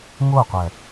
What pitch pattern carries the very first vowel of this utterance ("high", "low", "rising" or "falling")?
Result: falling